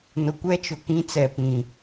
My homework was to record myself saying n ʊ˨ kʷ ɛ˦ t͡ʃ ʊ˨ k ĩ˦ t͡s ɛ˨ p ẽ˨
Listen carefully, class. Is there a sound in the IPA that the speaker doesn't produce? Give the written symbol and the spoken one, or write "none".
ẽ˨ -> ĩ˨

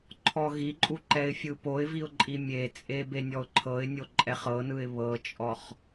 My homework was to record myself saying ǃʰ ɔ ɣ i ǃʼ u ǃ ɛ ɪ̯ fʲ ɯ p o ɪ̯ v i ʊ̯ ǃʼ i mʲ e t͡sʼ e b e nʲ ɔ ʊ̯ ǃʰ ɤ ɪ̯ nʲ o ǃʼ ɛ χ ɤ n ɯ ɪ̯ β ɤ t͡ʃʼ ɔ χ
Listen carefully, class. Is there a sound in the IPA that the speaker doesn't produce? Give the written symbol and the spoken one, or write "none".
none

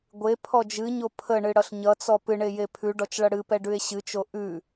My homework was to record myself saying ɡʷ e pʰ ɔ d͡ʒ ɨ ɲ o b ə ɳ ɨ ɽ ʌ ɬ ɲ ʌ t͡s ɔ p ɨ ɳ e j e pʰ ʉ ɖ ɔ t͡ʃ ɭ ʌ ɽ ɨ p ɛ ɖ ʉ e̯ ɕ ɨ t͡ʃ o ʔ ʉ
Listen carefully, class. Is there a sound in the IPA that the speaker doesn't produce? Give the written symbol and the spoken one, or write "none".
b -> pʰ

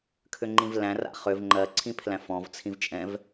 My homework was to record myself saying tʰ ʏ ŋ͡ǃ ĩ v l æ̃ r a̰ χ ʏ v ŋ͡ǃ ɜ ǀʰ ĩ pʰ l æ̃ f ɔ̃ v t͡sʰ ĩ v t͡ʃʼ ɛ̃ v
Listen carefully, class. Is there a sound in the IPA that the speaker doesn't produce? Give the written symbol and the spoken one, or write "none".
tʰ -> kʰ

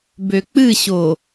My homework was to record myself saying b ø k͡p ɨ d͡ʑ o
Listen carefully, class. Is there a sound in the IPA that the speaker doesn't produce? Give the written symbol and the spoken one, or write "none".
d͡ʑ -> ɕ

